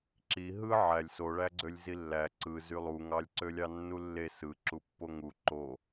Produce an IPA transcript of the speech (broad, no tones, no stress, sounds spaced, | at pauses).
ǁ i ɦ ɯ ʕ æ lʲ s o ɭ æ ɡ͡ǀ ø lʲ z i lː æ ǀ ɯ z y lˠ u ŋ ɑ lʲ ǀ ø lʲ ɑ nː u lː e s ɯ ǁ u pː o ŋ u ǃ o